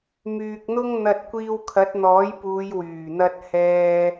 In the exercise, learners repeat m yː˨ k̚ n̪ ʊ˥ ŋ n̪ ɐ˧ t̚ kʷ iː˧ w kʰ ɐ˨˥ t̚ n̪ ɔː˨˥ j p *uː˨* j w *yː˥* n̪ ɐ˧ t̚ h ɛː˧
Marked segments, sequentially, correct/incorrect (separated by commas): incorrect, incorrect